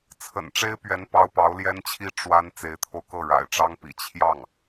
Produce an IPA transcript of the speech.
t͡sʰ ə̰˨˩ n ʈ͡ʂ e˥ ɪ̯ p ɥ ɛ˧˥ n p ɑ˥ ʊ̯ p ɑ˧˥ ʊ̯ l j ɛ˥ n t͡ɕʰ i˥ ʈ͡ʂ w a˥ n t͡s e˧˥ ɪ̯ t̪ʰ o˧ ʊ̯ k ɤ˥˩ ɻ a̰˨˩ ɪ̯ ʈ͡ʂ ɑ˥ ŋ p ḭ˨˩ t͡ɕʰ j ɑ˥˩ ŋ

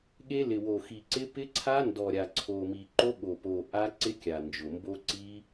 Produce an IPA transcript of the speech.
ɠ e˦˥ l ɪ˨˩ w o˨˩ x i˨˩ ǀ ɪ˦˥ p ɪ˦˥ ǀʰ a˦˥ n d ɔ˨˩ ɾʲ a˨˩ ǀʰ o˨˩ m i˨˩ ǃ o˦˥ ɠ o˨˩ p o˨˩ ʔ a˦˥ ǀ ɪ˦˥ kʲ a˨˩ n d͡ʒ ʊ˨˩ m b o˦˥ ǀ i˦˥

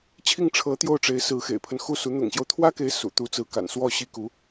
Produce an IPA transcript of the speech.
t͡ɕʰ i˥˩ ŋ ʈ͡ʂʰ ɤ˧˥ t̪ j o˥˩ ʊ̯ ʈ͡ʂ e˧˥ ɪ̯ s ɹ̩˧˥ x ḛ˨˩ ɪ̯ pʰ ə˦ n x u˥˩ s u˧˥ n̪ ʊ̰˨˩ ŋ ɕ j o˦ ʊ̯ t̪ʰ w ä˥ k e˧˥ ɪ̯ s ṵ˨˩ t̪ u˧˥ t͡s ɹ̩˧˥ k a̰˨˩ n s w ɔ˥˩ ɕ i˥ k u˧˥

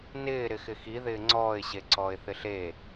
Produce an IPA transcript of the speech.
n ɪː ɾ ɪ x ɪ x i ð ɪː ŋ͡ǀ ɔː ɪ̯ ɕ e ǀ ɔː ɪ̯ θ ɪ ɬ e

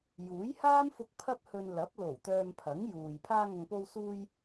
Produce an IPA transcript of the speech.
j uː˨˥ j h aː˥ m f ʊ˧ k̚ pʰ ɐ˥ p̚ h ɵ˧ n l ɐ˨˥ p̚ l o˨˩ w t̪ œː˧ m pʰ ɐ˨˥ ŋ j uː˨ j pʰ aː˧ ŋ ɐ˨ ŋ p o˧ w s uː˧ j

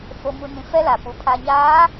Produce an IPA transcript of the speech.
f o˨ m u˨ n ĩ˨ f ɛ˦ l a˨ p u˨ pʰ a˨ ɲ aː˨˦

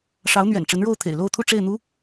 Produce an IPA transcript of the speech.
ʂ ɑ˧˥ ʊ̯ n̪ ɥ ɛ̰˨˩ n ʈ͡ʂ ə˧˥ n ɻ o˥˩ ʊ̯ t̪ʰ ḛ˨˩ ɪ̯ l o˥˧ ʊ̯ t̪ʰ u˥˧ ʈ͡ʂ e˥˩ ɪ̯ n̪ u˥

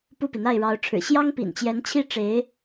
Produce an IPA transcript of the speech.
p u˥˩ p i˩ n̪ a˥˩ ɪ̯ ɻ ɑ˧˥ ʊ̯ ʈ͡ʂʰ ɻ̩˨˩ ɕ j ɑ˥ ŋ p ḭ˨˩ n t͡ɕ j ɛ˧˥ n t͡ɕʰ i˥ ʈ͡ʂ e˧˥ ɪ̯

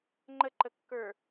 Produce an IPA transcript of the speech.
ŋ͡ǃ ə ǃ ə kː ə˞

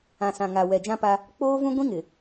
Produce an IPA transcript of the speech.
ã˨ s ã˨ ŋ a˨ w ɛ˨ d͡ʒ ã˦ p a˦ | k͡p oː˦ v ũ˦ ɡʷ ĩ˦ ŋ ɪ˨

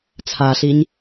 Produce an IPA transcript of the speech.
t͡sʰ a ɬ i ɲ

